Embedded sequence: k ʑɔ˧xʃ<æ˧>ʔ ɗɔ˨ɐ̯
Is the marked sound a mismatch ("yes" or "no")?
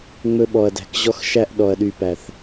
no